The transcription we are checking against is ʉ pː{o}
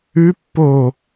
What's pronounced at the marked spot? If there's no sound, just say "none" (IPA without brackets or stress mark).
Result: o